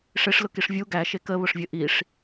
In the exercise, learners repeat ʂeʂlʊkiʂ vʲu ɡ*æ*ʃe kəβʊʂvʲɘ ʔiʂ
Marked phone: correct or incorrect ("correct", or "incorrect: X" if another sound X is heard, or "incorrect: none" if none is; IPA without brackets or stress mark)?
correct